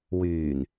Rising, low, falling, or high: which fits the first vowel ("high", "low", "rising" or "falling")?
low